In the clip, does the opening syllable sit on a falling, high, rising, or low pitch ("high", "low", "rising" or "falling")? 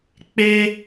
high